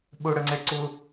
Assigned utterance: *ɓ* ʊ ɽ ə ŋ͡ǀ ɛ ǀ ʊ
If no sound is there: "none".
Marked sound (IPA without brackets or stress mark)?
ɓ